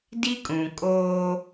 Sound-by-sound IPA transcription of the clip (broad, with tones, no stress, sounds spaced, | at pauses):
d i˦ kʼ ũ˨ kʼ oː˦